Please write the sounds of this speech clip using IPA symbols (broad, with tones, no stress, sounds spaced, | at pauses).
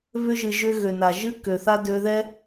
β ʏ˧ ʒ ɨ˨ ʒ ʏ˧ ɣ ø˨ n a˨ ʒ ɨ˦ k ø˨ θ a˦ d ø˧ ð ɛ˦